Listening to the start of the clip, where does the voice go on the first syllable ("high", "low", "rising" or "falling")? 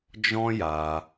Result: high